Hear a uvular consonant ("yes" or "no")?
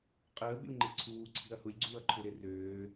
yes